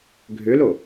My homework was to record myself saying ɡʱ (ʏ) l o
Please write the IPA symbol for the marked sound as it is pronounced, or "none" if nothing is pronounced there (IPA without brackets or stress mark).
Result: ʏ